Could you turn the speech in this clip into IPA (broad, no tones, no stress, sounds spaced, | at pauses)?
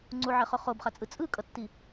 ŋ͡ǀ u ʕ ɛ χ o χ o b χ a t͡sʼ ɯ t͡sʼ ɯ kʼ ʌ tː i